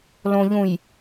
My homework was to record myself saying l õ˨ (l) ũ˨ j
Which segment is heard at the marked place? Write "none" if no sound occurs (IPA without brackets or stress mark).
ʎ